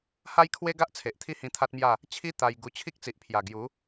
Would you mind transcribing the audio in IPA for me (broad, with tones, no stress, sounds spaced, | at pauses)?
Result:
h a˦ j kʰ w e˦ ɡ a˦ ʔ t͡sʰ e˨ ʔ t̪ʰ i˥˧ h ĩ˧ t̪ʰ a˦ t̚ m j a˥˧ | t͡ɕʰ i˦ t̪ a˧ j ɡ u˧ t͡ɕʰ i˦ k̚ t͡s i˨ ʔ pʰ j a˨˩ ɡ j u˨˦